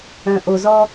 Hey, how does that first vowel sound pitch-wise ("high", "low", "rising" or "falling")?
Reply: low